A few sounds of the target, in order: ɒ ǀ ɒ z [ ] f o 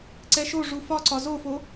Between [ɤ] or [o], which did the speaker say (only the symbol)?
o